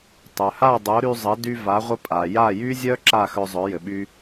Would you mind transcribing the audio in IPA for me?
tˤ œ˩ h a˥˩ dˤ o˩˥ ɾ y˧ zˤ ɘ˩˥ d y˧ v a˩˥ ʁʷ ə˧ pʼ a˩ j a˥˩ j y˥ zʲ œ˥ ǁ a˥˩ x œ˧ zˤ œ˩˥ j ɘ˩ ɓ y˧

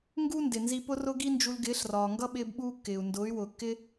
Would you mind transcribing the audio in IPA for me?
ŋ ɡ u˦ n d ɪ˨ n z i˧ p ʊ˦ r ʊ˦ ɡ i˦ n d͡ʒ u˧ l ɡ ɪː˨˦ ɬ r ɒː˨ ŋ ɡ ʌ˦ ɓ ɪː˦ b ɓ uː˦ kː ɪː˨ u̯ n d ʊː˨˦ y̯ w ʊː˨ kː ɪ˦

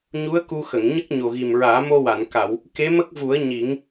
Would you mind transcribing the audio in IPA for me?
ɲ u˧˥ ə̯ k u˧ x ə˨˩˨ ŋ ɲ ə˦˥ k̚ ɲ o˨˩ ɣ i˨˩ m ɹ aː˨˩˦ m o˧ w a˨˩˨ n k a˨˩˨ w | k e˧˥ m ə˦˥ k̚ v u˨˩˦ ə̯ ɲ i˨˩˦ ŋ

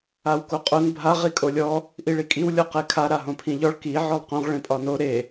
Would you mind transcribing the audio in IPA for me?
a w k o qʼ o n bʱ a ʁ i kʼ o lʲ ɔ | ʔ i ɭ i kʼ i w lʲ ɔ q e kʰ a ɾ a ɦ õ pʰ ĩ ʎ ɔ ɭ k i ʕ ɔ lˠ q õ ʁ ɭ ẽ pʼ ɒ n o ɾ e

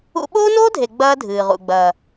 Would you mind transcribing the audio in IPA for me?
ṵ˦ ɓ oː˦ n oː˦ dʱ e˨ ɡ͡b ɐː˦ dʱ ɨː˨ ʁ ṵ˨ ɡ͡b ɐː˨

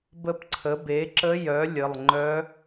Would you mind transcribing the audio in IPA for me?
b ə˧˥ p ǀʰ ə˩˥ b e˩˥ ǁ ə˧˥ j œ˩˥ lʲ ə˩˧˩ lˠ ŋ͡ǃ œ˧˥

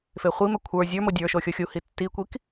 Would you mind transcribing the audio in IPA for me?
f e χʷ i m ɛ kʷʰ ə˞ zʲ ə˞ m o dʲ ə˞ ʃ o xʲ o xʲ u h i tː i kʷ i k

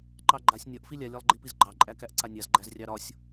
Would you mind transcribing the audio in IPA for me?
ǃ ɑ ɡ͡ǃ a sʲ nʲ ɒ ʔ f i lʲ a lʲ ɒ lˠ ɡ͡ǃ i p i z ɡ͡ǃ ɑ ǃʼ æ k æ ʔ ǀ a nʲ a z ɡ͡ǃ æ z rʲ ɑ ɾ ɒ sʲ

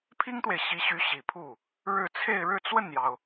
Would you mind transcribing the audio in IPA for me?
pʰ i˥ ŋ t̪ w e˨ ɪ̯ ɕ i˧˥ ɕ y˧˥ ɕ i˨˩ pʰ u˥˩ | ɻ ɻ̩˥˧ t͡sʰ e˥˧ ɪ̯ ɻ ɻ̩˥˧ t͡s w ə˥˩ n j ɑ˩ ʊ̯

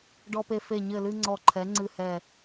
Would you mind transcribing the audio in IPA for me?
ɖ ɔ˦ p e˦ f e˦˨ ɲ ɘ˦˨ l ɨ˦ ŋ͡ǀ ɔ˦˨ ǃʰ ɛ˨˥ ŋ͡ǀ ɨ˦˨ h ɛ˦˨

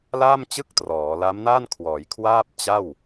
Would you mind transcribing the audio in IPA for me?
l aː˥˩ m t͡ɕ ɯ˥˩ k̚ t r ɔː˩˦ l a˦˥ m n a˥˩ n kʰ w ɔː˩˦ j kʰ w aː˥˩ p̚ t͡ɕ a˥˩ w

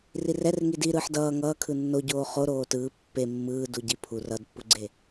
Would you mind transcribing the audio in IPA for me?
r i r ɛ r ŋ i d i ɾ ɯː ħ d ʌː ŋ ʌː kʰ ɯ nː o ɟ oː χ o ɾ oː t ɯː pː e mː ɯː d u ɟ i pʰ u r ʌ d pː u ɡ͡ǀ e

